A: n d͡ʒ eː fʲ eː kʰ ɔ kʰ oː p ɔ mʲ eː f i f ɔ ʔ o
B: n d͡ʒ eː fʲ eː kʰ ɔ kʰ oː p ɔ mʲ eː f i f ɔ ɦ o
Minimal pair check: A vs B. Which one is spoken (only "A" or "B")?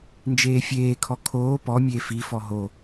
B